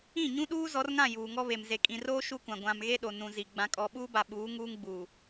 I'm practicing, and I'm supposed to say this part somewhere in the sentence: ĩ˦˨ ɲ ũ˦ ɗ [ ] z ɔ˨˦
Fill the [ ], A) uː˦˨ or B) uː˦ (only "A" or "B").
B